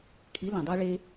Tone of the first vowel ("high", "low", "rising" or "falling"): rising